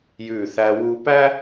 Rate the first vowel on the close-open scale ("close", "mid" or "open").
close